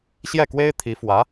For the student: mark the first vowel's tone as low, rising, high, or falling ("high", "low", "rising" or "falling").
falling